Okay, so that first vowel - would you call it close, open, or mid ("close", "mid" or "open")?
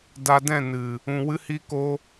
open